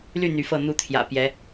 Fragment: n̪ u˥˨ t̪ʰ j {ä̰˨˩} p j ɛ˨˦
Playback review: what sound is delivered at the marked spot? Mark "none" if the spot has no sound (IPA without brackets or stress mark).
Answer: ä̰˨˩